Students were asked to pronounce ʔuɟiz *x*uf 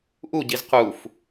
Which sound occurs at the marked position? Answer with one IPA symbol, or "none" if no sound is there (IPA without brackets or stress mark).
q